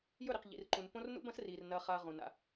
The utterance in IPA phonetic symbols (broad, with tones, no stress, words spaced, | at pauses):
jɵ˦˨ɾi˨qʎḭ˨rǃũ˨n põ˦rnṵ˦bɐ̃˦s ri˨r nɐ˨χa˨ ʁũ˨na̰˦